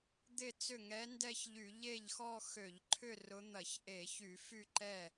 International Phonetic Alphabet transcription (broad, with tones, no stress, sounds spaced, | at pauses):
d̪ ɪ˥˧ t͡s ʏ˥˩ ŋ ɛ˧˥ n d ɛ˥˧ ç ʎ y˧˩˧ ʎ e˥˩ ʎ x ɔ˥˧ x ø˧˩˧ ʎ ǃʰ ʏ˥˧ r ʊ˧˥ n̪ ɐ˧˩˧ ç ʔ e˧˩˧ ç y˧˩˧ f y˥˧ ǃ ɛ˥˩